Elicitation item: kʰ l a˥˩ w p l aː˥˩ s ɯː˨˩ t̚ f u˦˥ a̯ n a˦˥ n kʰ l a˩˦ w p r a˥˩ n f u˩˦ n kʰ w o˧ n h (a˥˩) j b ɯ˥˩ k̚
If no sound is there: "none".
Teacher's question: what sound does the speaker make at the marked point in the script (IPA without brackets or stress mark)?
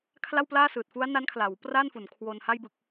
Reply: a˥˩